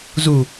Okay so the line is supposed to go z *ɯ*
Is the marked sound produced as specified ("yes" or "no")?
no